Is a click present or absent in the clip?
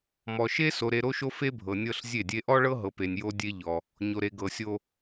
absent